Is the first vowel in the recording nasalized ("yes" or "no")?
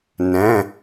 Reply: yes